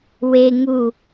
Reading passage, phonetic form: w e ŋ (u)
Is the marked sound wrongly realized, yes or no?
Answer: no